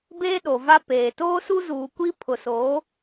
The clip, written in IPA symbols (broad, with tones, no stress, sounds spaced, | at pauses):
b eː˦ ɗ o˨ v a˦ p eː˨ t oː˦ s u˦ z uː˨ kʷ i˦ pʰ ʊ˨ s oː˨˦